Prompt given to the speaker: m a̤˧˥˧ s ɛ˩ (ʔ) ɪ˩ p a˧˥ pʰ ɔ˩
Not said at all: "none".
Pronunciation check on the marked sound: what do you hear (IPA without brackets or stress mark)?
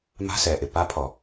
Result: ʔ